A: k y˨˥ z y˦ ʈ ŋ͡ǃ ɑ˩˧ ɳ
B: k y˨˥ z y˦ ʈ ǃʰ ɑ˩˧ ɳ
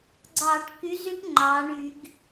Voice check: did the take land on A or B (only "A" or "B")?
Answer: A